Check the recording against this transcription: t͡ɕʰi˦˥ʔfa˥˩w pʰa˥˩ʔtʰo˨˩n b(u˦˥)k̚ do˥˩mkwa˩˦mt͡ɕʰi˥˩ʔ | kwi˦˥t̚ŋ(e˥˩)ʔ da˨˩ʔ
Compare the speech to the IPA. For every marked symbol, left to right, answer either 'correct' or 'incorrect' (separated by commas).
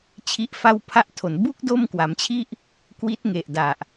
correct, incorrect